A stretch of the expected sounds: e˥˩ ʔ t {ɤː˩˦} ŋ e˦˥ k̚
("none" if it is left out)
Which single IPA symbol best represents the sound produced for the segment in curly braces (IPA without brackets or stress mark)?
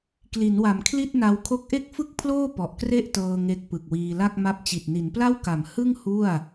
ɤː˧